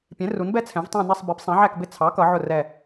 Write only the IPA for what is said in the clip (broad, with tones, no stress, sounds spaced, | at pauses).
pʲ ɛ̃˨˥ r u˨˥ n b ɛ˥˧ t͡sʰ ɛ̃˨˥ v tˤ ɑ̃˥˧ n ɛ˥˧ sˤ b i˨˥ p sˤ ɛ̃˨˥ ʕ æ˥˧ k b ɪ˥˧ t͡sʰ ɑ˨˥ k ʌ˨˥ ʕ ʊ˥˧ r ɛ˥˧